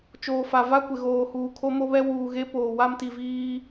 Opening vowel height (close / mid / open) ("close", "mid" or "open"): mid